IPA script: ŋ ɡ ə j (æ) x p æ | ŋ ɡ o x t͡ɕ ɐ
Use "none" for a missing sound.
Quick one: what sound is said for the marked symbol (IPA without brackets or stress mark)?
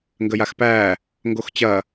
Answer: a